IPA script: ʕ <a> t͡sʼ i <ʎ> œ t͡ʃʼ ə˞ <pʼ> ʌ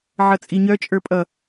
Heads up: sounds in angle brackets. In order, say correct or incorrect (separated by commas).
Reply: incorrect, incorrect, correct